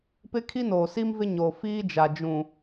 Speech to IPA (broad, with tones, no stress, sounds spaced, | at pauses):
p ɪ˦ kʰ i˦ n oː˨ s i˦ m v ɪ˦ ɲ o˨ f iː˦ d͡ʒ a˨ d͡ʒ ũ˨